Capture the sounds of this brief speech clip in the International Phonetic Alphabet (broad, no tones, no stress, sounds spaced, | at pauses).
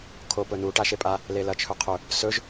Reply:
kʰ o p ɵ n u ʈ a ʃ e pʼ a | l e l ɐ t͡ʃʰ ɵ qʰ ɵ | s ɵ ʒ